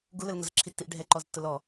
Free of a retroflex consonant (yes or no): no